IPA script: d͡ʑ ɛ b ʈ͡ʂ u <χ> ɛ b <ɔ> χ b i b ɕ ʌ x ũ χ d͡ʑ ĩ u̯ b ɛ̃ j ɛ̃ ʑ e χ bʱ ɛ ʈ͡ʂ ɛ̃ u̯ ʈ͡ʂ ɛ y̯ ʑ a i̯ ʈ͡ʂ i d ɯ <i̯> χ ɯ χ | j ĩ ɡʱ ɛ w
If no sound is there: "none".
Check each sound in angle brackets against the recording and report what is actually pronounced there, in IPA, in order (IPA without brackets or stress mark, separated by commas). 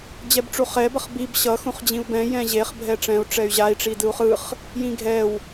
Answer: χ, ʌ, u̯